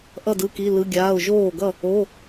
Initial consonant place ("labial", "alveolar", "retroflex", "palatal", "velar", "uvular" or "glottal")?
glottal